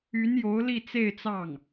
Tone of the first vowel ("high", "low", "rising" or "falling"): rising